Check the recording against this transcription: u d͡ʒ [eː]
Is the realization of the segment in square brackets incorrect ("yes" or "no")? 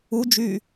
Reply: yes